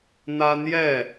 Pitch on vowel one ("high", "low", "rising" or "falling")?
high